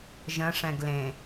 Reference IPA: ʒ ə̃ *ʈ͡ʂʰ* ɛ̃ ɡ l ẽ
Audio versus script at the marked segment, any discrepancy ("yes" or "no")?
yes